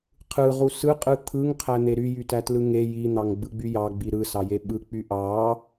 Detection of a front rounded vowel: present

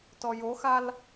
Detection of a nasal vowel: absent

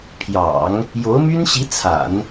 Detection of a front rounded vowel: present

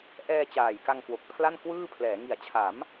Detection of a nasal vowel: absent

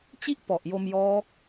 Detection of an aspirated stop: absent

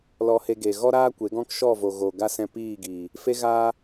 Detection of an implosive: absent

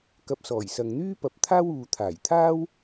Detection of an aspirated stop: present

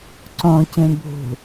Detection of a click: present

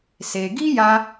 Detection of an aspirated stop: absent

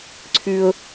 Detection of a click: present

